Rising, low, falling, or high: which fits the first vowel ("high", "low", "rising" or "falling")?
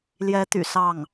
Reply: rising